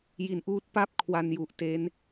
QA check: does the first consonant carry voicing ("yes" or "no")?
yes